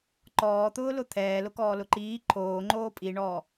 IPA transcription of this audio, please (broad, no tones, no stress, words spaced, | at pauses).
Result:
ǃɔːt̪ʊːlʊ t̪ʰɛːlʊkɔːlʊ ǃiː ǃʰoːŋ͡ǃoː pʼiɳɔː